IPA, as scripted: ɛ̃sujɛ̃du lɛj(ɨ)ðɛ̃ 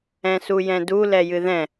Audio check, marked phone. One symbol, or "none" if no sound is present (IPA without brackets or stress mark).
ɨ